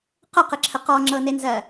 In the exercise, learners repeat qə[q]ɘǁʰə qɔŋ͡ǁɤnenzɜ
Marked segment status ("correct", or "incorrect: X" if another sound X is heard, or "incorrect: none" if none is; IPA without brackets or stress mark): correct